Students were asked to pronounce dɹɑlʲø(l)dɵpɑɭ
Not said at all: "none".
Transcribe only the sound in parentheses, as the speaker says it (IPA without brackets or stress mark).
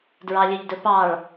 ʎ